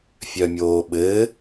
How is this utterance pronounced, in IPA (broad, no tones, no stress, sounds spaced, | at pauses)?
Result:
fʲ œ mʲ oː ɓ ɘː